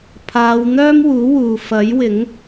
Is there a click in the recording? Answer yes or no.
no